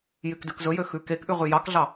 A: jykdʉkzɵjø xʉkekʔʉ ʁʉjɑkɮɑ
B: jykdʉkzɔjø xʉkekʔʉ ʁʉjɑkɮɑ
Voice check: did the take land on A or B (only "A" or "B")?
A